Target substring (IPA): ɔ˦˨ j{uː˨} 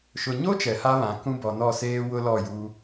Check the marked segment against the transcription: incorrect: uː˦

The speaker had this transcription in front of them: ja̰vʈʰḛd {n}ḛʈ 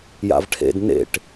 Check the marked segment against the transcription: correct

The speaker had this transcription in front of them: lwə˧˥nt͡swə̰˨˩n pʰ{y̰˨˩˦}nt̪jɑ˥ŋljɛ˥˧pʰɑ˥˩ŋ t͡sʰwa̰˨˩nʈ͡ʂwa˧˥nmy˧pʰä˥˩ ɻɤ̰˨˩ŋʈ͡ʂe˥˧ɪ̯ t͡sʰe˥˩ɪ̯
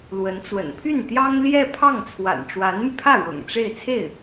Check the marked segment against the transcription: incorrect: y˥˩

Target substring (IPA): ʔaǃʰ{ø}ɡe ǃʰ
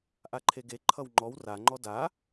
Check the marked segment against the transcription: incorrect: e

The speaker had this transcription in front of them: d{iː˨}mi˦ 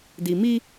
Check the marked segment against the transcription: incorrect: i˨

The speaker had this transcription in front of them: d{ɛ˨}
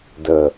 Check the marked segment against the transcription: incorrect: ə˨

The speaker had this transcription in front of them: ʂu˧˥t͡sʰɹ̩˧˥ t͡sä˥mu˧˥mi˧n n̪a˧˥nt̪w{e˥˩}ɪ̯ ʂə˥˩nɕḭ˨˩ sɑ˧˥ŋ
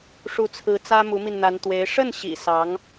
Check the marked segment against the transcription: incorrect: e˧˥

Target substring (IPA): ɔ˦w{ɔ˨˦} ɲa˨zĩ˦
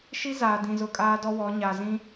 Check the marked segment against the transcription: correct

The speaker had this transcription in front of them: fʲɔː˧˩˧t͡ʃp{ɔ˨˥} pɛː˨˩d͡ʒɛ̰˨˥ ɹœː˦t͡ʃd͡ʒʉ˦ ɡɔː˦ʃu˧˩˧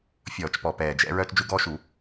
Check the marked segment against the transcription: incorrect: ɔ˨˩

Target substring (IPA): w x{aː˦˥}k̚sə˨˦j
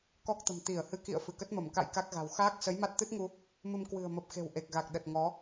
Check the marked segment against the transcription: correct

